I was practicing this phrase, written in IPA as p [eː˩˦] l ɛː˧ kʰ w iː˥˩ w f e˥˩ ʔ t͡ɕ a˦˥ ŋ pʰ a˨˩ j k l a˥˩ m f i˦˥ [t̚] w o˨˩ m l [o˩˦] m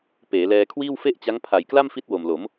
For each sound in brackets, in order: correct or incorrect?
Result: correct, correct, correct

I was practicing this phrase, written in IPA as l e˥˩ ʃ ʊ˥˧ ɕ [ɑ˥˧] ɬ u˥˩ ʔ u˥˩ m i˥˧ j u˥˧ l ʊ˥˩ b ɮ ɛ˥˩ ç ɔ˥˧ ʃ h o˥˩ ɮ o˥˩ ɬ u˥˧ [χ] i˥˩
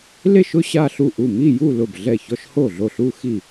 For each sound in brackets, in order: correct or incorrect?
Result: incorrect: a˥˧, incorrect: x

